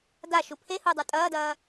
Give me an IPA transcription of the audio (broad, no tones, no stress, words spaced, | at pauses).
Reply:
da ʃupʰehu dˤə˞tʼɐːdɐː